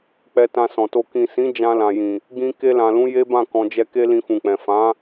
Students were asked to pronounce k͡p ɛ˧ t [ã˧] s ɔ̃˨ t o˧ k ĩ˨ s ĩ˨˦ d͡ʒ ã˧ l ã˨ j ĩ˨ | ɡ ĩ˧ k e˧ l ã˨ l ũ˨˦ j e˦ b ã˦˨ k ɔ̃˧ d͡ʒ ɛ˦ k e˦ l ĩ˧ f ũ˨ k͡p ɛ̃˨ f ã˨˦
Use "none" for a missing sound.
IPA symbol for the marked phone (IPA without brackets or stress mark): ã˧